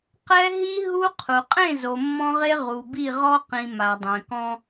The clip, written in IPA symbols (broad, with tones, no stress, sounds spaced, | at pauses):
q ɛ˦ ɦ i˦ ɦ u˦ qʰ u˨ qʼ ẽ˦˨ z o˨ mː ɔ̃˦ ʁ e˦ ʁ u˨ b i˦˨ ʁ ɔ˦ q ĩ˨ m a˨ dˤ ɛ̃˨ k ɔ̃˦